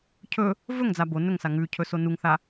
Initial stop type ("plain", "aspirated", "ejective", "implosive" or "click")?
aspirated